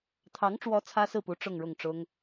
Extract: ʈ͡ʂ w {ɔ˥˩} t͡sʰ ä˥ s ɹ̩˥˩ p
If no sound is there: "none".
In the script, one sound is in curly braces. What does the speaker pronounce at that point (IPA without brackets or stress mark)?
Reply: ɔ˧˥